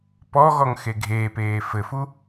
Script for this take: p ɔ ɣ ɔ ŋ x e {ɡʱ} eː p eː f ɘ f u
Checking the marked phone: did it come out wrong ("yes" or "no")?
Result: no